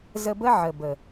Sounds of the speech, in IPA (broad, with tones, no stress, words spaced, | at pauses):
zə˧bə˦ ʕə˨bə˨